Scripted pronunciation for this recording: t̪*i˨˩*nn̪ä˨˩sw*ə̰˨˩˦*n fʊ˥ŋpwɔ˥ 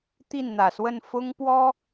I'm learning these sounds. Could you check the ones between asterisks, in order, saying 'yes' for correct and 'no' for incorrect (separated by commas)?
no, no